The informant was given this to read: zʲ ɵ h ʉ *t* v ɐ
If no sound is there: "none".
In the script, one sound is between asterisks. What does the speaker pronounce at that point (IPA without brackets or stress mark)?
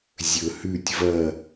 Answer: tʲ